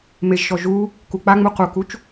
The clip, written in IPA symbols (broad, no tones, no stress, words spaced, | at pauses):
meʒʃɔ ʒu | kuk͡paŋ͡mu qukut͡ʃ